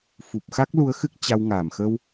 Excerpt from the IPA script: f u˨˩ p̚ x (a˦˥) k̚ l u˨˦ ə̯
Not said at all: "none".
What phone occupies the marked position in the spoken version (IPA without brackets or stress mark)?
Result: a˦˥